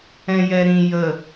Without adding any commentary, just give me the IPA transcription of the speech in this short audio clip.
ɛ̃ j ɛ ɾ ĩ j ə

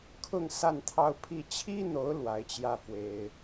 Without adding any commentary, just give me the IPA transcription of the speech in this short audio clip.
kʰ ʊ˥˧ ŋ s a˥˧ n t̪ʰ ɑ˥˧ ʊ̯ pʰ i˥˩ t͡ɕʰ i˥ n̪ o˧˥ ʊ̯ l w a˧˥ ɪ̯ t͡ɕ j ä˥˩ f w e˥ ɪ̯

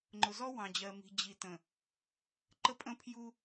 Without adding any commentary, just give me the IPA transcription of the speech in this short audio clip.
ŋ͡ǃ ʊ˨ z ɔ˦ w ɑ̃˨ d͡ʑ ɜ˨ m i̤˨ d͡ʑ i˨ t ə̃˨ | ǃ ə˦ pʼ ə̃˦ pʰ j u˦

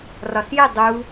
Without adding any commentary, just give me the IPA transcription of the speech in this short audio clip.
r ɒ s j ɪ dˤ u

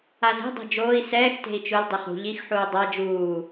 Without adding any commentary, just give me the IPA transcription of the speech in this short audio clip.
a z e̤ dˤ e̤ d͡ʒ oː i̯ s ɛː x t e̤ i̯ t͡ʃ ʊ l dˤ ʊ χ ṳ ʎ i x ħ uː dˤ a d͡ʒ uː

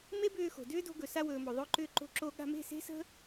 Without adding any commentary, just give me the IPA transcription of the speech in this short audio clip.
m e˦ b ʏː˧ x o̤˨ d ʏː˦ d o̤˧ ɡ ɵ˨ s a˧ w ɵː˨ m o˨ ðˤ ʊː˧ ǃ ʏː˧ ǃ o̤˧ ǁ o˧ ɠ a̤˧ m e̤˦˨ s e̤˦ s ə̤˦

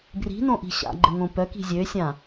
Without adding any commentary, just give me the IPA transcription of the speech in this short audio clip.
b r i̤ n õ ʔ i̤ ɕ a̰ ɡ͡ǃ ɘ ŋ õ p œ k i̤ zʲ ø sʲ ã

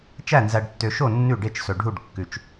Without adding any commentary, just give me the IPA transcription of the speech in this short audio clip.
t͡ʃ æ˥˩ n z æ˨ ɖ tː ø˨ ʃ o˥˩ nː ʉ˥˩ ɖ e˥˩ t͡ʃ s ɵ˨ ɖʱ u˥˩ ɖ kː ʉ˨ t͡ʃ

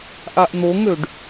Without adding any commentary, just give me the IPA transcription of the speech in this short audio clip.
ʔ a ʔ n̪ o ŋ ø ɖ

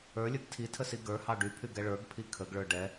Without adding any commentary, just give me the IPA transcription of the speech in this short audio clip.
ə˞ lʲ ə˞ ɡ tʰ i tʰ ə s i ɡ ə˞ h ɑ ɖ y pʰ y ɡ ɛ ɭ ə˞ ɡ pʰ i kʰ ə ɡ ɭ ə˞ ɖ ɛ

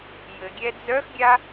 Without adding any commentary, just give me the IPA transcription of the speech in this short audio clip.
j ɘ ɡʲ ɛ d͡z œ x ɡʲ a

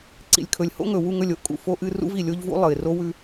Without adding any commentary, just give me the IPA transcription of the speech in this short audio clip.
ǀ ḭ˨ lʲ kʰ ɵ˨ lʲ h o̰˦ ŋ ɵ˨ w u˦˨ ŋ ɵ˦˨ lʲ o˦ ʔ kʼ ṵ˨ f o˦ ʔ ɨ˦ r ṵ˦ v i˨ lʲ o˦ ʎ v ṵ˦ lˠ ɨ˨ ɪ̯ r o˦ w ʉ˦

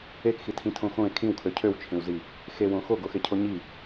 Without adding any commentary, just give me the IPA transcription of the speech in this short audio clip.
e k x i tʰ ĩ tʰ õ x õ e̯ kʰ ĩ w kʰ ø cʰ ø w t͡ʃʰ ẽ w z i | x e w õ x o ɡ o x e cʰ o ɲ i

